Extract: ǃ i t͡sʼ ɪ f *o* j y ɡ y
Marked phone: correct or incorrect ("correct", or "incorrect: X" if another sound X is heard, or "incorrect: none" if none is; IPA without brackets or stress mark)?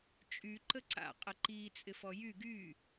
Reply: incorrect: ɔ